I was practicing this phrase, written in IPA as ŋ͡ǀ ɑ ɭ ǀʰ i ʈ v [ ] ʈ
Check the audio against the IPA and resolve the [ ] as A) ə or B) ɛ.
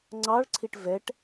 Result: B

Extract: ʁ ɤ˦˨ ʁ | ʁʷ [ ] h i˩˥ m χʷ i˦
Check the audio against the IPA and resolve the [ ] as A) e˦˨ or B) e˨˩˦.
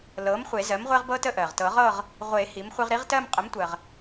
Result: B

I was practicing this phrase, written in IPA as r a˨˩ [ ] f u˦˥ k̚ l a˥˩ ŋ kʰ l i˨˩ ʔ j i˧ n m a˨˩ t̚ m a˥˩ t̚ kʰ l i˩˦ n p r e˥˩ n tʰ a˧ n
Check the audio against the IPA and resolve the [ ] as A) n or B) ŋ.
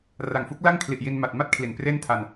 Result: B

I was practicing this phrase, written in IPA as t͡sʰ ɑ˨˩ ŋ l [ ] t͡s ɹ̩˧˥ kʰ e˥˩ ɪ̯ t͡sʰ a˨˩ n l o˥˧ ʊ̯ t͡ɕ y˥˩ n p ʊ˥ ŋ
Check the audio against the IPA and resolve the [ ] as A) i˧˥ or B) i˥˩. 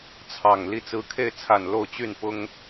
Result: B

